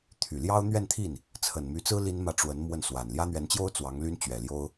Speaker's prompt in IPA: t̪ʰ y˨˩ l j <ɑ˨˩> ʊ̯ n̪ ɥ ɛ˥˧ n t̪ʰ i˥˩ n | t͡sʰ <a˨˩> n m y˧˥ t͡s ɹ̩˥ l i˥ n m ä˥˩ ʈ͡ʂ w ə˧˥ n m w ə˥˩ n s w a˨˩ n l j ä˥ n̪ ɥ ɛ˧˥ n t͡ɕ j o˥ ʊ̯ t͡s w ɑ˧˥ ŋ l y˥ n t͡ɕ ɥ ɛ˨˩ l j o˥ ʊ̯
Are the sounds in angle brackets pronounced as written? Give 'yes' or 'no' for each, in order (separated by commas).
no, no